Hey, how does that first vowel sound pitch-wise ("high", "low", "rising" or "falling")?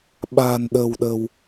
low